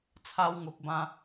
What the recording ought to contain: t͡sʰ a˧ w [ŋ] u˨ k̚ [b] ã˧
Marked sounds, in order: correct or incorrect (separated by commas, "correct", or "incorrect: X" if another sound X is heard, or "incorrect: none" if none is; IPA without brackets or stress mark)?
correct, correct